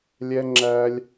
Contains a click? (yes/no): yes